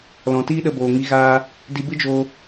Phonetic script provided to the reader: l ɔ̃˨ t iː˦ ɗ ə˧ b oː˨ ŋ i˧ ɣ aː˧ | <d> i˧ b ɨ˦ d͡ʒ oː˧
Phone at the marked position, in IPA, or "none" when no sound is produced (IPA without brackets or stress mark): d